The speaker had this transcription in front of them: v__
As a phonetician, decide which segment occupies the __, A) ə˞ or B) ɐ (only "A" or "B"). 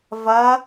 B